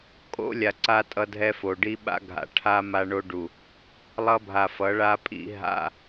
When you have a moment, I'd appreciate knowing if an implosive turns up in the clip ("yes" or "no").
yes